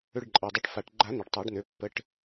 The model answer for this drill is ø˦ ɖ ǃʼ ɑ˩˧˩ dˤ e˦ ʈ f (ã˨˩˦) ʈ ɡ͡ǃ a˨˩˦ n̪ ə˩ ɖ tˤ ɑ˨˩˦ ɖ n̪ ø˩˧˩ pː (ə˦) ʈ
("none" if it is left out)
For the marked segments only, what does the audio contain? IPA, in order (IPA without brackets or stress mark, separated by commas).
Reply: a˨˩˦, ə˩˧˩